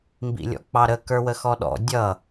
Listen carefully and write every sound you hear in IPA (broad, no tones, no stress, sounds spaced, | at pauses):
m b ḭ lʲ ɔ̰ k͡p ɑ ɾ ə k ə˞ w ə x ɔ ɗ ɔ̰ dʲ ʌ